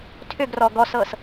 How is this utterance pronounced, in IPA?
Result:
tʰ ʏ ɡ r ɔ ɡ ɔ s ɤ s

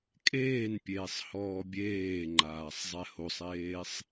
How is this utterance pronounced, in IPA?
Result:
kʼ eː n pʲ eː sˤ h ɔː bʲ eː ŋ͡ǃ aː sˤ zˤ ɛ h o sˤ eː sˤ

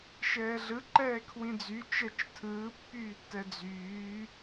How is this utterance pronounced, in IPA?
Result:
ʃ ɛː ɮ ɯ ǃ ɛː kʰ w ĩ d͡z y t͡ʃ ɛ t͡ʃ tʰ ɯː pː yː tː ɛ d͡z yː

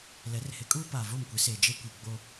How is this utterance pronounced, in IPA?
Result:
l ɛ˨˦ r h ɪ˨˦ kʼ uː˦ p aː˨ v o˦˨ m kʷ ɪ˨˦ s eː˨ d͡ʒ e˦ kʷ i˨ ɡ͡b o˦

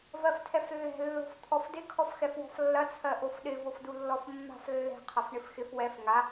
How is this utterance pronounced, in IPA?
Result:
v ɜ f tʰ ɛ f lː ɛ̤ lː o̤ f t̪ʰ ɔ f d ɪ kʰ ɔ f x ɛ f w ɔ̤ f lː ɐ t͡sʰ ɜ ʔ o f ɗ ɪ v o f d u lː ɔ f mː a̤ f lː ɛ̤ qʰ ʌ f ɳ ɪ f x ɪ f w ɛ f ŋ a

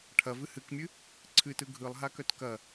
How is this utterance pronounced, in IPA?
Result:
ʈʰ ɐ v ɨ h ɨ k mʲ ɨ | ǀʰ ɨ t ɯ ɡʱ ɯ lˠ ɦ a k œ t k ɐ

